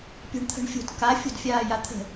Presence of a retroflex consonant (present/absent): present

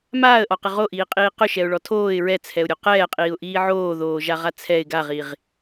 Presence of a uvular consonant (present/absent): present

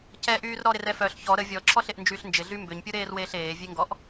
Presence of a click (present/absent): present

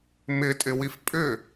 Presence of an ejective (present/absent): present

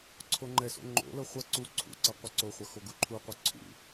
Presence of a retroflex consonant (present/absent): absent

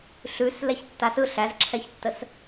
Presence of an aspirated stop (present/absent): present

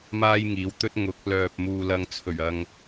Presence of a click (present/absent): absent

